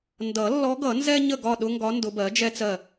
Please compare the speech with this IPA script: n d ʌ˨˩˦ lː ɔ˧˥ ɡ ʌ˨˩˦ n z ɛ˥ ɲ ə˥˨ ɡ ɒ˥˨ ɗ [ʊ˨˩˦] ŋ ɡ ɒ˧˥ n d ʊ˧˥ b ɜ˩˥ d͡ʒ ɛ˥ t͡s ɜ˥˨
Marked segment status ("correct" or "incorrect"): incorrect